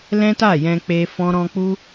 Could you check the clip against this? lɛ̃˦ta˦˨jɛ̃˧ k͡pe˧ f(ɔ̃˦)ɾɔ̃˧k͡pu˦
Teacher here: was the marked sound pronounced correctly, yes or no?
no